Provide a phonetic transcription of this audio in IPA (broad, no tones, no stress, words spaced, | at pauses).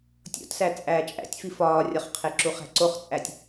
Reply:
tʲo̰tsæ t͡sʼæːt͡ʃʼæ̰tʲfi fɒːrʲɒχqʰeǁu χæ̤ǀoχt͡sʼætʲ